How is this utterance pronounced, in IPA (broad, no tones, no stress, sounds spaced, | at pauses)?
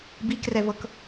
b i k r ɛ v ɤ k